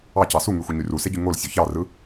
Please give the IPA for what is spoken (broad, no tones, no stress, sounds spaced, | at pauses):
ɑ c ɑ s u ŋ y xʷ i ɲ y r u s e ɟ y ŋ o l sʲ ø ç ɑ r ɯ